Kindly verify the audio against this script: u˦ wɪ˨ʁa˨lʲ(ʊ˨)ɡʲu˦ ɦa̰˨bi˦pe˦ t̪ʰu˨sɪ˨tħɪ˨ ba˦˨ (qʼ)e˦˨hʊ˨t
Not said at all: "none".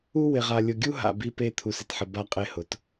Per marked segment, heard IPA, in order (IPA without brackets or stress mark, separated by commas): ʊ˨, qʼ